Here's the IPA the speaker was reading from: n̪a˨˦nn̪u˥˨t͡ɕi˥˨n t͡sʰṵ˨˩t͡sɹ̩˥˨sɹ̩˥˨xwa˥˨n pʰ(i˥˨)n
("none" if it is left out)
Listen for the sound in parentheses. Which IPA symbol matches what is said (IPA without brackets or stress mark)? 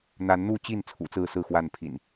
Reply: ḭ˨˩